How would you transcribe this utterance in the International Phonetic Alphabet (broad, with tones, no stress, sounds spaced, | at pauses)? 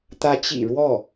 t̪ ä˧˥ t͡ɕ ḭ˨˩ ɻ w ɔ˥˩